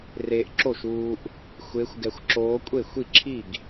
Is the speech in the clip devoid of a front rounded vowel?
yes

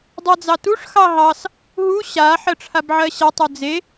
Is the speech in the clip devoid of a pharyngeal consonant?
no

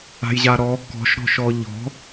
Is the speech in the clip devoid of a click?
yes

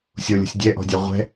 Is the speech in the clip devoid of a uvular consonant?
no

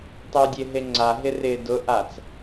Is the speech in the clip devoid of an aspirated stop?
yes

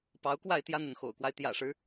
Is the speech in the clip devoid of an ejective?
yes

